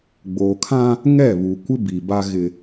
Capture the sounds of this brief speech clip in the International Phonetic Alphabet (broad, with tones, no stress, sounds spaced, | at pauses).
ɡ͡b oː˨ kʰ ã˦ | ŋ ɛ˦˨ β u˨ kʷ ɪ˦ b i˨ b a˦ ɣ ɪ˦